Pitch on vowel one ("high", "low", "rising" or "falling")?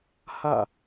falling